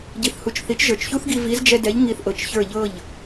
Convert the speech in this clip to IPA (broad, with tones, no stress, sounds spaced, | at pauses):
ɟ i˩ θ h u˩ t͡ʃ θ i˩˥ t͡ʃ ʒ ə˞˩ t͡ʃ ç u˥ θ ɡ i˧ v i˩˥ z d͡ʒ ɛ˧ d ɛ˩˥ ʎ ŋ i˧ θ ʔ ɤ˩ t͡ʃ ç ə˞˥˩ ʎ ɤ˥˩ ʎ